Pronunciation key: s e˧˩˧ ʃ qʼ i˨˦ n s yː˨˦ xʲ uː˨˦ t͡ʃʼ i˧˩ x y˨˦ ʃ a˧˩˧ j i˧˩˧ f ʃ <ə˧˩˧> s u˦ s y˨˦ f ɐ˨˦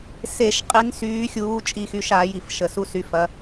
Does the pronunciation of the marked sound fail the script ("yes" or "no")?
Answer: no